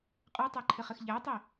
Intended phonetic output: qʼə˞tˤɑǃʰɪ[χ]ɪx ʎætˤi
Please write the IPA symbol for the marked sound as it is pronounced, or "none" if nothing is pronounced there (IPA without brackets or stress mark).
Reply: χ